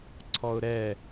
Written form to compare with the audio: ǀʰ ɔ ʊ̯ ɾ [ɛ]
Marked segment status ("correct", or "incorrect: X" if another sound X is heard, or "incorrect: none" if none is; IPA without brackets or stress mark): correct